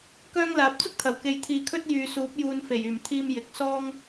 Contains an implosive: no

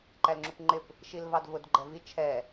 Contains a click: yes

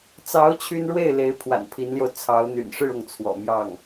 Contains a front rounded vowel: yes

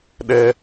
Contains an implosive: yes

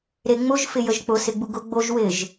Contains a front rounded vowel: no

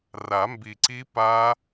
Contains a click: yes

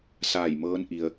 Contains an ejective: no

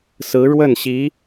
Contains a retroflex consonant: yes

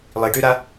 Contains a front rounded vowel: yes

